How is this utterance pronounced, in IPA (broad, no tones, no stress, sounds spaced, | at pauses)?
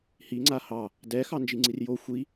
h i ŋ͡ǀ a h ɑ | d ɛ x ɑ n d͡ʒ i ŋ͡ǀ i r j o xʷ i